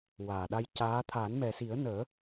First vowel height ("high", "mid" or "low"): low